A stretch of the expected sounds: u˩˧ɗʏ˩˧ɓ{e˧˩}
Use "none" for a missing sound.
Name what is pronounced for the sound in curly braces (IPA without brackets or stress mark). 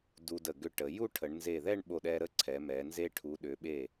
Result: e˧˩